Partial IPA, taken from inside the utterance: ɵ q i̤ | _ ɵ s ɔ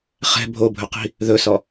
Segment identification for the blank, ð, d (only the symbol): ð